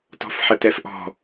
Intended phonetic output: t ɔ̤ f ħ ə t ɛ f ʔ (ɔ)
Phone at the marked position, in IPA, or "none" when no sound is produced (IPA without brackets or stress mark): ɔ̤